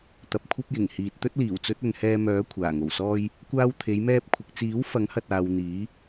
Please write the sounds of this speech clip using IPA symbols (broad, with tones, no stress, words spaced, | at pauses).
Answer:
t̪ɐ˨p̚ kʷʰɐ˥p̚jɪ˨˩ŋhiː˨t̚ t̪ɵ˥t̚liː˨˩wt͡sɵ˨˥t̚ɵ˨n hɛː˧mœː˨˥ kʷʰaː˨˩ŋo˨˩wsɔː˥j | kʷaː˧w t̪ʰe˨˧jmɛː˧p̚kʷʰɪ˨k̚t͡siː˨˥w fɐ˨˥ŋhɐ˨t̚aː˨w n̪iː˨˥